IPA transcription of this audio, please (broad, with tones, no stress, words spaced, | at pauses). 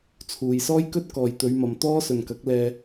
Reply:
t͡sʰuː˨jsɔː˥jkɵ˥t̚ kɔː˨jt̪ɵ˨˧ɥmɐ˨m t̪ɔː˥ sɵ˨nkɐ˨˥k̚lɛː˧